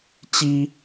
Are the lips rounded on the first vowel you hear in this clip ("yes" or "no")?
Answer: no